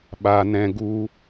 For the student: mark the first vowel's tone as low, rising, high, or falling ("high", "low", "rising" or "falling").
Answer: low